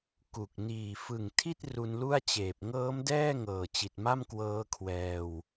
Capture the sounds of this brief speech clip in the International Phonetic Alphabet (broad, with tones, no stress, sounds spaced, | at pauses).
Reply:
k u˨˩ k̚ n iː˨˩ f ɯ˨˩ ŋ tʰ i˥˩ t̚ r u˧ n l u˥˩ a̯ t͡ɕ eː˨˩ p̚ ŋ ɤː˦˥ m d ɛː˥˩ ŋ ɤː˨˩ t͡ɕ i˨˩ t̚ m a˥˩ m k w ɤː˦˥ kʰ w ɛː˧ w